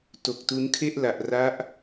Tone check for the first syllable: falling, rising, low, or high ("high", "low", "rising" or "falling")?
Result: low